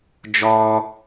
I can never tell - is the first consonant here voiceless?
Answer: no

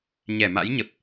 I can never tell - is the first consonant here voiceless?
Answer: no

